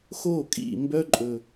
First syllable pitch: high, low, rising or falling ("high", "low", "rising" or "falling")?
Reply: falling